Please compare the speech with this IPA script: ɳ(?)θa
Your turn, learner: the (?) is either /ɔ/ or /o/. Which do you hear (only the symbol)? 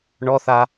ɔ